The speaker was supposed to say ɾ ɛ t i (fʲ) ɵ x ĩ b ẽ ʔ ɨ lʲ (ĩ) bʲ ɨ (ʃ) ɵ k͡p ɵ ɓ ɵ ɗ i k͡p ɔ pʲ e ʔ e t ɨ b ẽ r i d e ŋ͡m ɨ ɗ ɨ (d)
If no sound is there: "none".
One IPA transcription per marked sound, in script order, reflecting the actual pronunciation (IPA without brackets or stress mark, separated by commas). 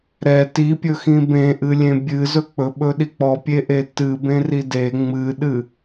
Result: pʲ, ẽ, z, none